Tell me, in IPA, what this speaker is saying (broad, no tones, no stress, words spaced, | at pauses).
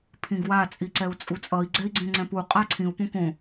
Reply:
pʰĩɡwa t͡sʼiǀɛu̯t͡sʼut͡sʼʌi̯ ɡ͡ǀɛi̯ɡ͡ǀẽŋ͡ǀɛ̃pu qʼaǀʰĩu̯ põkõ